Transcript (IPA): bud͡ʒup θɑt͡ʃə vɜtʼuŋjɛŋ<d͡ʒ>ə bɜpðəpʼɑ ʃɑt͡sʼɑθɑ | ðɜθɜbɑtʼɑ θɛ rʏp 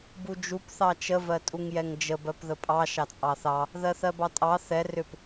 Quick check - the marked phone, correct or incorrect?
correct